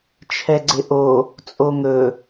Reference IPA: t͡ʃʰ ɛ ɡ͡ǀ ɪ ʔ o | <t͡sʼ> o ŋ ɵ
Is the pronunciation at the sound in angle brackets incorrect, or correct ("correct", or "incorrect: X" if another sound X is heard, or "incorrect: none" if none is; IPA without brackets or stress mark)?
correct